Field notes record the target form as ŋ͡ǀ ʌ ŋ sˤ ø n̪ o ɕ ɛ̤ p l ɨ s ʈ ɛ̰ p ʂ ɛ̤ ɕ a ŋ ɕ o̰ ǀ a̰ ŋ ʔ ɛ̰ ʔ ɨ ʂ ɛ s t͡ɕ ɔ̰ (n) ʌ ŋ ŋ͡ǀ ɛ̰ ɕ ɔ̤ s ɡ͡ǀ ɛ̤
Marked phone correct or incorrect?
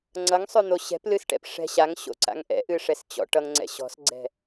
incorrect